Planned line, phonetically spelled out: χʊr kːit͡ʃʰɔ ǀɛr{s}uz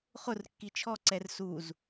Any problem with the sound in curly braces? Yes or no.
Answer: no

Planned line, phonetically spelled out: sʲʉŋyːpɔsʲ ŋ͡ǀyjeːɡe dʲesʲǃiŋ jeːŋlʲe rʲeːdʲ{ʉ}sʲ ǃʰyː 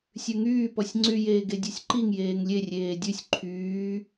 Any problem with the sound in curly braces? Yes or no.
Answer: no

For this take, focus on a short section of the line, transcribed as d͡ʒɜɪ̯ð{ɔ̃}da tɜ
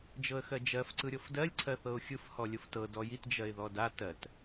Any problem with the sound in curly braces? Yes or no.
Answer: yes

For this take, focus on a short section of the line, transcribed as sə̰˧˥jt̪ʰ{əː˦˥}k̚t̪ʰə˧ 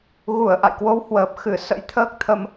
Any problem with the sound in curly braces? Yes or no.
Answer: no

